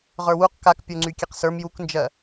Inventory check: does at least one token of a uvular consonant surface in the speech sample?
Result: yes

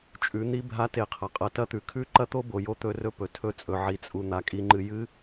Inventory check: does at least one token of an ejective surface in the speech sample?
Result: yes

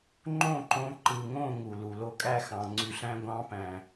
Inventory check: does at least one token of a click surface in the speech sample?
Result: yes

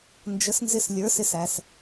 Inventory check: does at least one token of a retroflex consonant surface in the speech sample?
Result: no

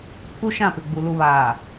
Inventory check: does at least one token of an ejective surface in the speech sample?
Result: no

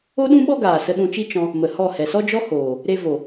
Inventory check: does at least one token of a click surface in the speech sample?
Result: no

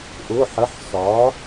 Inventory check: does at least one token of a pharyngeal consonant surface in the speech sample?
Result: yes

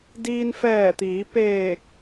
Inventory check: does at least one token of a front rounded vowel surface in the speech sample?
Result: no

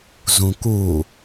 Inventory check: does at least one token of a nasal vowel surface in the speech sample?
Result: yes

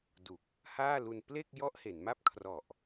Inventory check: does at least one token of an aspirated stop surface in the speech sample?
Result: yes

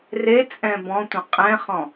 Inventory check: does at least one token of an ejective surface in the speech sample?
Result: yes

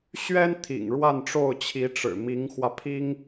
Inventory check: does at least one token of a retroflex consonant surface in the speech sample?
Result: yes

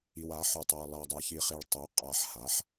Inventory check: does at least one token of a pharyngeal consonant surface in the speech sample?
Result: yes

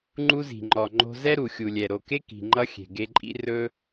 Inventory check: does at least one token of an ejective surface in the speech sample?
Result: yes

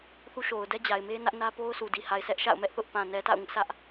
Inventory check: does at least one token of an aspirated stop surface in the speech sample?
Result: no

